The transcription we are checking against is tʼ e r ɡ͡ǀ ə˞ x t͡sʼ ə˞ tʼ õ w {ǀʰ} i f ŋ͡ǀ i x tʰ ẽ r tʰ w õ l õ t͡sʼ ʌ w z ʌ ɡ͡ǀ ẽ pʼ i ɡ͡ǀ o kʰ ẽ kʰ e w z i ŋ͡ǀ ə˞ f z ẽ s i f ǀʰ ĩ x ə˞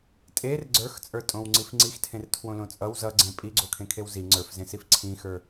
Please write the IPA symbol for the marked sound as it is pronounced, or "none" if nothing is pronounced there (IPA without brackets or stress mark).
ŋ͡ǀ